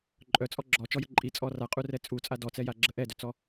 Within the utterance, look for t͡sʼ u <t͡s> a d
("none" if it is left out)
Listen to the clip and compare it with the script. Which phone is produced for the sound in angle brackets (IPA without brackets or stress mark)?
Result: t͡sʼ